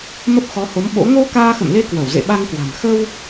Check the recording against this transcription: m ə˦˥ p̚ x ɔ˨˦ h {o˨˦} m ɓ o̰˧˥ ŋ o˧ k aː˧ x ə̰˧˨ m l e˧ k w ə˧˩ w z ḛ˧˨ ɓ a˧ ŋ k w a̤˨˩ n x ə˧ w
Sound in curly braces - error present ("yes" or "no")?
no